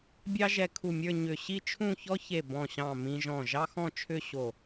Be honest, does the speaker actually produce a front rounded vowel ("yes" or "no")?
yes